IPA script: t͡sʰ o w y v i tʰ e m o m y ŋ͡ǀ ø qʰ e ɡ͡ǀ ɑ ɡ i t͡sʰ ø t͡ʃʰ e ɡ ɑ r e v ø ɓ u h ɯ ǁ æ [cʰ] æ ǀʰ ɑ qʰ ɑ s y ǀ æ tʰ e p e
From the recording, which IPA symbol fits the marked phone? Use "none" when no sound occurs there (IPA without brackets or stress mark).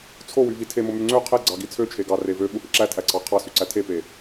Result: tʰ